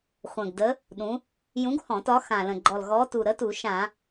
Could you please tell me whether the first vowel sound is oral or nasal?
nasal